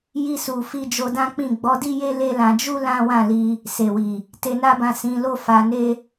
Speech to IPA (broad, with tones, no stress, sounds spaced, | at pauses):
j i˧ s u˨ f i˧ d͡ʒ o˧ d ã˦ k͡p ĩ˦˨ ɡ͡b ɔ˨˦ d i˦ j e˦ l e˦ l ã˧ d͡ʒ u˦ l ã˦ w ã˦˨ l i˧ | s e˨ w i˨ | t e˧ n a˦ b ã˦˨ s ĩ˨˦ l o˦ f a˧ n e˦